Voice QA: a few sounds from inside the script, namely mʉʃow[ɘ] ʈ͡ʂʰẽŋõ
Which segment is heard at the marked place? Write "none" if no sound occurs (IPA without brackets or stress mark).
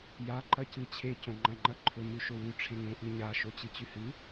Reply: ʉ